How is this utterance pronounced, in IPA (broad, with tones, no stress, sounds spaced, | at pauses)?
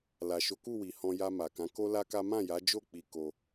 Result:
l a˨ ʃ o˨˦ k u˦˨ w i˨ h ɔ̃˧ j a˧ m a˨ k ã˨˦ k o˦ l a˦ k a˦ m ã˦˨ j a˨˦ d͡ʒ o˦˨ k͡p i˧ k o˧